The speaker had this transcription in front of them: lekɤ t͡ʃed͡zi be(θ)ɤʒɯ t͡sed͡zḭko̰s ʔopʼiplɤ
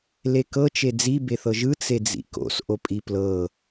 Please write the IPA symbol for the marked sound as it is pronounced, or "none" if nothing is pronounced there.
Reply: θ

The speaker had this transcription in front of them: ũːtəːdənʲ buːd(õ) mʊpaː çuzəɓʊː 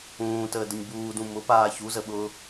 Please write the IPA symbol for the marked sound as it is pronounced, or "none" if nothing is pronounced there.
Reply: ũ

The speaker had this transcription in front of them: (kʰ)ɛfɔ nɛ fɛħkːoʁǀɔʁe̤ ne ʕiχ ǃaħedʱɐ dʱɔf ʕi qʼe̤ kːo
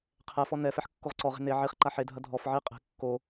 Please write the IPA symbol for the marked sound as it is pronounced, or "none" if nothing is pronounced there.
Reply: qʰ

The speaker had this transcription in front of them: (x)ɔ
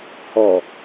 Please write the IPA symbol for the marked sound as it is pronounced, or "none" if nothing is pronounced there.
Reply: h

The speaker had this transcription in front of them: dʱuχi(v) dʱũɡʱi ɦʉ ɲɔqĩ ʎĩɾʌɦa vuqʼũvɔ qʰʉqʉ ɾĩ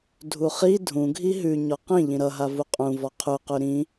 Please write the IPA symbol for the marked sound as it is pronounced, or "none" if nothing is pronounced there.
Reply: none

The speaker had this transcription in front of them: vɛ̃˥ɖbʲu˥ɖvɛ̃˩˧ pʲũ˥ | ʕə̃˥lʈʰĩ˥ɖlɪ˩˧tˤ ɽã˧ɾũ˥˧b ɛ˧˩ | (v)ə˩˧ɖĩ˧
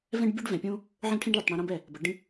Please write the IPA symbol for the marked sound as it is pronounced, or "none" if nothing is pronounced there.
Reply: b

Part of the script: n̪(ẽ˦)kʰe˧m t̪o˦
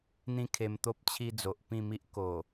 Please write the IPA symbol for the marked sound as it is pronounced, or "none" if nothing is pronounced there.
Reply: ĩ˦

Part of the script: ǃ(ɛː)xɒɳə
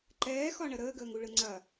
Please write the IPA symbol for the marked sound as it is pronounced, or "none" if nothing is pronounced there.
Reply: ɛː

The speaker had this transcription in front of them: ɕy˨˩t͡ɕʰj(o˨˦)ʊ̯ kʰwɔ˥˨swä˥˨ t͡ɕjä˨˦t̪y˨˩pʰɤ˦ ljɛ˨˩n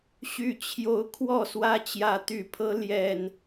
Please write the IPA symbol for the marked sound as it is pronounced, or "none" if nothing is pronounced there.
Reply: o˨˦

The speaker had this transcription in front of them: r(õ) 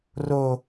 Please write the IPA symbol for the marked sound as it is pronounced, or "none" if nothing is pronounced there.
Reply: o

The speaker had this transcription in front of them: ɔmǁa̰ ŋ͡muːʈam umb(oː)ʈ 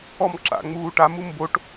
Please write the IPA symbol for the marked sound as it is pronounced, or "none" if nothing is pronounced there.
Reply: o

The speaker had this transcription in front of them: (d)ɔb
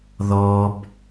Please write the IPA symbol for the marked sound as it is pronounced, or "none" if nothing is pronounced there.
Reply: ð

